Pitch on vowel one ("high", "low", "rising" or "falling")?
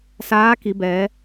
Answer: rising